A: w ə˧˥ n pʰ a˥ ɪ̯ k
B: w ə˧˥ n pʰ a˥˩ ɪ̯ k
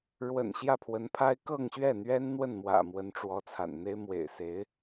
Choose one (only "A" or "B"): A